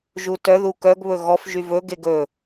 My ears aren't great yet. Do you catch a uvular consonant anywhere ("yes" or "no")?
no